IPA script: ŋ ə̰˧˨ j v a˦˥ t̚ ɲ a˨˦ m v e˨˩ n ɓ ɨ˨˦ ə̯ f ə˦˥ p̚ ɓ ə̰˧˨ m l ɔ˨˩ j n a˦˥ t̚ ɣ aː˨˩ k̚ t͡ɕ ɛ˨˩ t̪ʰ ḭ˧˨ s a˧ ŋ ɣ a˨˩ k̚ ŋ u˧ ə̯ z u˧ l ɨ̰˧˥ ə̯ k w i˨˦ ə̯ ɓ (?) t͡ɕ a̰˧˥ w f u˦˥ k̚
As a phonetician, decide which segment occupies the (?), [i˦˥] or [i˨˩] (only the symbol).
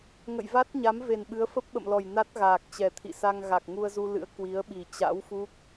i˨˩